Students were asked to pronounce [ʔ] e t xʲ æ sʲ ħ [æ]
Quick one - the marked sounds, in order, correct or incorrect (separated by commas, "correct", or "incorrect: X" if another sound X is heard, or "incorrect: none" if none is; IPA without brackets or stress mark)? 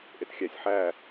correct, correct